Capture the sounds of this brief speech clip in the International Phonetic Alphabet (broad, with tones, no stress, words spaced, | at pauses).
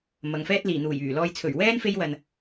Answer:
mɐ˨˧ŋfɛː˥t̚ liː˨˩n̪uː˨˩jyː˨˩lɔː˧j t͡sʰɵ˨˩ɥwɛː˥n fe˥jwɐ˨n